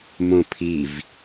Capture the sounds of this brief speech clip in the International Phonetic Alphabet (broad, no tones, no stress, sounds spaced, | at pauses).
m õ pʰ i v